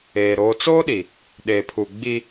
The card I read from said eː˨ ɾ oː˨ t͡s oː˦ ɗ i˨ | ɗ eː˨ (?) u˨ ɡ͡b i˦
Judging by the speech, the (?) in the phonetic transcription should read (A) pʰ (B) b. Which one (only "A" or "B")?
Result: A